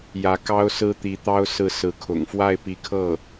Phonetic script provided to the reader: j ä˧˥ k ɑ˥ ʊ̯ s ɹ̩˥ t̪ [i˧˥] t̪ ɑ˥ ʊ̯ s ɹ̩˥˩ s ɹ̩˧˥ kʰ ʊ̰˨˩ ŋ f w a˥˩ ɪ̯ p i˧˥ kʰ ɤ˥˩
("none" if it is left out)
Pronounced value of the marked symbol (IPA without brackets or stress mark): i˧˥